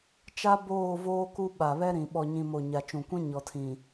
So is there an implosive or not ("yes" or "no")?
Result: yes